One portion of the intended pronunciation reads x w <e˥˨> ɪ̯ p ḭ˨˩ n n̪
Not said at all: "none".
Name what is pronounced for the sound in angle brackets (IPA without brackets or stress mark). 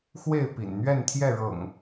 e˥˨